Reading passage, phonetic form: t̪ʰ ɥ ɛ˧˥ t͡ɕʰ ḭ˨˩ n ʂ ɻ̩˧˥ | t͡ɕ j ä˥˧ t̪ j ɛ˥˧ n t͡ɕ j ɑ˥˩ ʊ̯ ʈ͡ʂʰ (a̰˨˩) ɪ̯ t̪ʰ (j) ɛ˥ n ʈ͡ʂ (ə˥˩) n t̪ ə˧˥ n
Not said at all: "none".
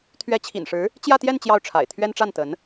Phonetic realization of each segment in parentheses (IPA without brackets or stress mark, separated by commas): a̰˨˩, ɥ, a˥˩